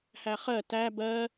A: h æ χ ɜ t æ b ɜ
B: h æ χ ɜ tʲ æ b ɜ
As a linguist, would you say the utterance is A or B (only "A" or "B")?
A